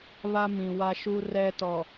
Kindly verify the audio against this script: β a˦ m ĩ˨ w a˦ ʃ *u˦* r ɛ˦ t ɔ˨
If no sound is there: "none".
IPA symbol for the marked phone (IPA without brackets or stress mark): u˦